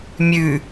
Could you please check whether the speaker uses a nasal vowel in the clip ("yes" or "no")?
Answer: no